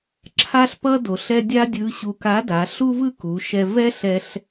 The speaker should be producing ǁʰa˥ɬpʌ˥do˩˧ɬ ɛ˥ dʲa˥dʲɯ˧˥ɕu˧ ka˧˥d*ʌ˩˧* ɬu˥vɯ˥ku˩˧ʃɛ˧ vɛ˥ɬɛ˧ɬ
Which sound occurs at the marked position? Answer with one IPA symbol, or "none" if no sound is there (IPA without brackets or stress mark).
a˩˧